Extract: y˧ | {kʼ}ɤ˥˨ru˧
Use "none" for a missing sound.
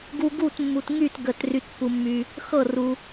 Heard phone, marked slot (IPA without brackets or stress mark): x